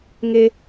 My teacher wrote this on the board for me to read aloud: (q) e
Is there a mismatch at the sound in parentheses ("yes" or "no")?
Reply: yes